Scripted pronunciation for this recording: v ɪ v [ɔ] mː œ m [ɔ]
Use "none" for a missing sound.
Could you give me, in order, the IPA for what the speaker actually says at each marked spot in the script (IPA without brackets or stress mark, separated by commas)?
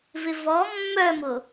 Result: ɔ, ʊ